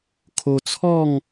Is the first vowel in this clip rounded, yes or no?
yes